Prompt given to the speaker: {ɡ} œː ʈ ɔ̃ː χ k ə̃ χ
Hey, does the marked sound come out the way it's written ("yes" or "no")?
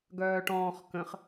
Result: yes